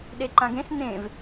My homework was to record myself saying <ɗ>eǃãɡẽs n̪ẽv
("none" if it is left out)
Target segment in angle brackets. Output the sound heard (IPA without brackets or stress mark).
ɗ